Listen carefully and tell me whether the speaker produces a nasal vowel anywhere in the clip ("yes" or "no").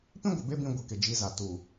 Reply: yes